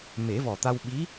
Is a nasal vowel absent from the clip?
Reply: yes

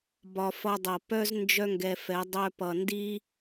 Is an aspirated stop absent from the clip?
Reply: yes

